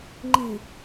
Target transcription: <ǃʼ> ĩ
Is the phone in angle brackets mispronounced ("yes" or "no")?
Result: yes